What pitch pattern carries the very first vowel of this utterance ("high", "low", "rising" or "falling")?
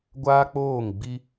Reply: high